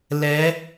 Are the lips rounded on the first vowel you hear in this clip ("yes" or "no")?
no